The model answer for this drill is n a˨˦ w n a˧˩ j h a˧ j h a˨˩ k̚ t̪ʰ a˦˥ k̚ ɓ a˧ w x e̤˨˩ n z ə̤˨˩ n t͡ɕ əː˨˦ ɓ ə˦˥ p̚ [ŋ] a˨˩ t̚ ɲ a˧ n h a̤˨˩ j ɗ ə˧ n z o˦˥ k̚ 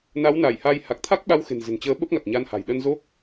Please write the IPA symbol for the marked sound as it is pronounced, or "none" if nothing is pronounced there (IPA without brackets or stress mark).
ŋ